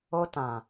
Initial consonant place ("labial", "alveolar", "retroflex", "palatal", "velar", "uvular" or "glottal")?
alveolar